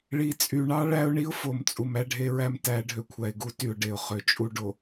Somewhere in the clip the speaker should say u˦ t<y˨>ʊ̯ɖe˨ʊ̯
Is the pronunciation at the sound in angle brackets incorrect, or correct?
correct